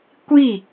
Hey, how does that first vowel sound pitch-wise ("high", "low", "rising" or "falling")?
falling